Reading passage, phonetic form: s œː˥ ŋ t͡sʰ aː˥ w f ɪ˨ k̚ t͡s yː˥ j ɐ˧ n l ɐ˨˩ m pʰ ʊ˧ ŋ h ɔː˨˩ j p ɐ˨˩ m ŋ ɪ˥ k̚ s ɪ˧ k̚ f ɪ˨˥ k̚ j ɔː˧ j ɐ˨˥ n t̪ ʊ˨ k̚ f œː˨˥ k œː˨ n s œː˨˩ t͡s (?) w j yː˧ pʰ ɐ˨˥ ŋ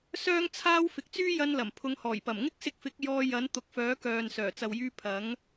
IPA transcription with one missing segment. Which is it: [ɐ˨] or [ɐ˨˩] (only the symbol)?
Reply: ɐ˨